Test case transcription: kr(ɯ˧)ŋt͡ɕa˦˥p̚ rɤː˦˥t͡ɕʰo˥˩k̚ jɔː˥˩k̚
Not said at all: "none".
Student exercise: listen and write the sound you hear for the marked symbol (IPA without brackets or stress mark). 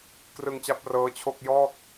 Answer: ɯ˧